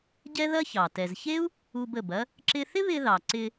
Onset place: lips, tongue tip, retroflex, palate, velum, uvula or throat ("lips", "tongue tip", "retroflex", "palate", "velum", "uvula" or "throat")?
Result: palate